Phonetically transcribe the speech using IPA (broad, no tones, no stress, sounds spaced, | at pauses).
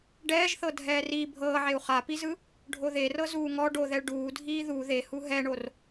ɖ ɛː ʒ θ ɤ dʱ ɛː r i bʱ ɤː ʕ e u̯ χ a p i z ɯ | ɖʱ o ð e r ɤ z uː ŋ ɔ ɖ o ð ɛ ɭ ɖ uː dʱ iː ð u ð e h u ɦ ɛ ɳ o r